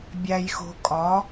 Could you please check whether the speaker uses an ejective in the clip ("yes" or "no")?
yes